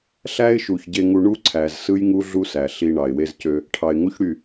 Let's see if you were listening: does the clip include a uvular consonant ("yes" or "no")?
no